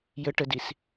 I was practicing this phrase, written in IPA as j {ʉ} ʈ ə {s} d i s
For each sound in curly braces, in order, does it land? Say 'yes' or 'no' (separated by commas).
no, no